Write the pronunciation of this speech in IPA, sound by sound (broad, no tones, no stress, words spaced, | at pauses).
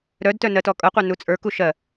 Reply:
ɾœdtœ nɜtɔkʼɤqʷœ nut͡sʼə˞ku ʃɜ